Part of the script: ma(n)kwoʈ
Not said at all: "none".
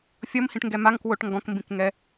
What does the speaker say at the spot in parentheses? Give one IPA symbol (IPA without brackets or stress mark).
ŋ